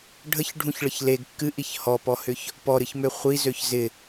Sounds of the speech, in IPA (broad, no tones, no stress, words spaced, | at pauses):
ɖʱəçɖʱũçɭəç leɡ kːɨʔiç hɔpɔhʏç | pɔɾɨçmø χʷizøç zɪ